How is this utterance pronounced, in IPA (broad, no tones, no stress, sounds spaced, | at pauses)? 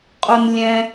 qʼ o n lʲ ɛ̃